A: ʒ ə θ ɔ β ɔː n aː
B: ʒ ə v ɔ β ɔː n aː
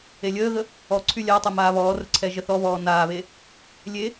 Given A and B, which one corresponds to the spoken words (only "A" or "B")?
A